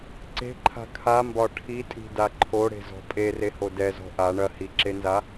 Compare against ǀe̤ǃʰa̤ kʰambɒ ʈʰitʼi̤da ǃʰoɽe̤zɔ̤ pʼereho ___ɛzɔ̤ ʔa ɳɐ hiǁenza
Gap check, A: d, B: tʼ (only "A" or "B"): A